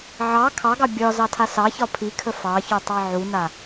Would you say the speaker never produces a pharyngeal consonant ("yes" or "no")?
no